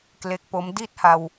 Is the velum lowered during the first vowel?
no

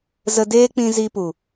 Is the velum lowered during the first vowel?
no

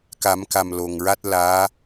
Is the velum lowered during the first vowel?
no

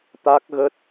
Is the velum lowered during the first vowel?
no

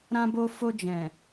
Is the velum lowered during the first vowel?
yes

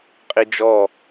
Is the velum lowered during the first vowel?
no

